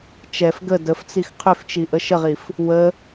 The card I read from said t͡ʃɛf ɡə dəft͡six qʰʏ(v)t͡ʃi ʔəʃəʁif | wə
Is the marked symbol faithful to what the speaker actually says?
no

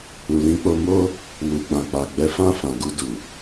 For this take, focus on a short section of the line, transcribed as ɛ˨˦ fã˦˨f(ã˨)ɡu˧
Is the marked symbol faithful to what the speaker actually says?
yes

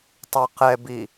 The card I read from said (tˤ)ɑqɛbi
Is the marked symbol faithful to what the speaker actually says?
yes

